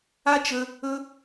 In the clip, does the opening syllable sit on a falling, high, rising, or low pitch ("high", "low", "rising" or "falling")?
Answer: high